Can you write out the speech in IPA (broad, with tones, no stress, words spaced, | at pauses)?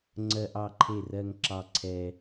ŋ͡ǀɜ˦ʔɑ˥˩ǃʰe˥˩rɜ˦ŋ ǁɑ˥˩ǀʰɛ˦